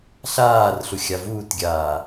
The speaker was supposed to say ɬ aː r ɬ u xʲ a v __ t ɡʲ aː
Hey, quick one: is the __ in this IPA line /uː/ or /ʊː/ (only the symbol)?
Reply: uː